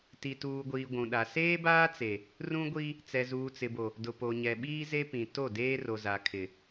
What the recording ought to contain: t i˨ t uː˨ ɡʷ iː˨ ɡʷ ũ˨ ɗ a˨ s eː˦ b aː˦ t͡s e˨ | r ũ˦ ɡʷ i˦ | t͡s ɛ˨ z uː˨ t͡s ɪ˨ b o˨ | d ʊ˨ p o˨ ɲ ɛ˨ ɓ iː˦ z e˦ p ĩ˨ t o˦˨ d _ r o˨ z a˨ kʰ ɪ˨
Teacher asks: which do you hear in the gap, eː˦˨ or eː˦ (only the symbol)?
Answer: eː˦